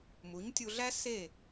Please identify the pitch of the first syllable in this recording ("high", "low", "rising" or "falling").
rising